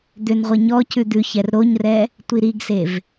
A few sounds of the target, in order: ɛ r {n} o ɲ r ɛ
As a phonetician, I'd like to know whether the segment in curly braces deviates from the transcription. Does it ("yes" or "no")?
yes